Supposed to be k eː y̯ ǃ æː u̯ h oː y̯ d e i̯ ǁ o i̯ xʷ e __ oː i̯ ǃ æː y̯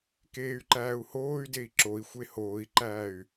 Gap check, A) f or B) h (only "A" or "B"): B